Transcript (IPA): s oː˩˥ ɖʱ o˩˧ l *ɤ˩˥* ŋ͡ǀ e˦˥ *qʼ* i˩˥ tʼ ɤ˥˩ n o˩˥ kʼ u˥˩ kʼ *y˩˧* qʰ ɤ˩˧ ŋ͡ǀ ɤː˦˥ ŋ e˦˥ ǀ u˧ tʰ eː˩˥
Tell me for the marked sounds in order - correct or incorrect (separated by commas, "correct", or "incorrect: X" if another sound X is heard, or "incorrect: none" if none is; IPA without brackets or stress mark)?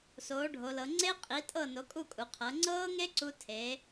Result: incorrect: ɤ˩˧, correct, incorrect: u˩˧